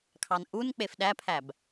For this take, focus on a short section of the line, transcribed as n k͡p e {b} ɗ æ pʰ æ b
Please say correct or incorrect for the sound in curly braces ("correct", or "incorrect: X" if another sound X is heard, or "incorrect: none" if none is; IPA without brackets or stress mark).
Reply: incorrect: f